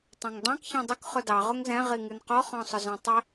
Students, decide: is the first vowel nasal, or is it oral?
nasal